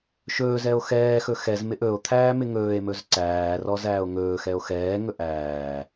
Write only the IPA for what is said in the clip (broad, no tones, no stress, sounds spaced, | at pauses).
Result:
ʃ ɵː z ɛ o̯ x ɛː x ɵ x ɛ z m ɪ ʔ ɵ o̯ t̪ʰ æː m ɪ ŋ ɵː e̯ m ɵ z ǀ æː r ɔ z æː o̯ ŋ ɵː x ɛ o̯ x ɛː ŋ ɵ ʔ æː